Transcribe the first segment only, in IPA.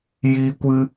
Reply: j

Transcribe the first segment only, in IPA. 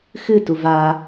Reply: x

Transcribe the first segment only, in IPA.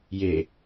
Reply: j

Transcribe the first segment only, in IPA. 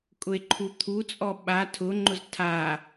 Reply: kʼ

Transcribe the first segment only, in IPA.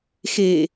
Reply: x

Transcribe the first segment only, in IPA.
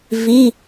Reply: v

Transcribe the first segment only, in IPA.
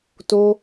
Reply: t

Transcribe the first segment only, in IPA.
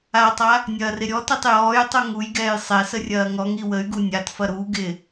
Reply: a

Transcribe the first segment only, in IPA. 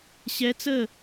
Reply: ɕ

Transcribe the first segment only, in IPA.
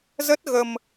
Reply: z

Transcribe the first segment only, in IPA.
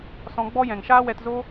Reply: s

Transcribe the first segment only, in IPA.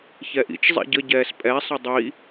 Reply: ç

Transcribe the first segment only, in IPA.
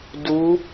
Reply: d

